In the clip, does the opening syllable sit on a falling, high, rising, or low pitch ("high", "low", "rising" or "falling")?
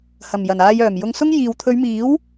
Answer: low